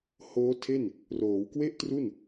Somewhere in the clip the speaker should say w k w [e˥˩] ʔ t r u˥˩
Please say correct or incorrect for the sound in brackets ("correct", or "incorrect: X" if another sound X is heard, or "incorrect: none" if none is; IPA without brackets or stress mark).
correct